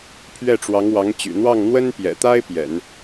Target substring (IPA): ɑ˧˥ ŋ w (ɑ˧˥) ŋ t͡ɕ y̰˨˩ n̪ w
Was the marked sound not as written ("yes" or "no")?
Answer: no